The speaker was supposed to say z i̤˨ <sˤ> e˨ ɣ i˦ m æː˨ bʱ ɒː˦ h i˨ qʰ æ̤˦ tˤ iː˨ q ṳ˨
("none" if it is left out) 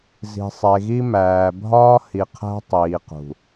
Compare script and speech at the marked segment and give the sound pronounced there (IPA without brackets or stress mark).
sˤ